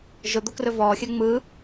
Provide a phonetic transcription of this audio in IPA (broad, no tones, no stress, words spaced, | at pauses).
ʒʊd̪o krɵvɔːxʲɜ ŋ͡mɯ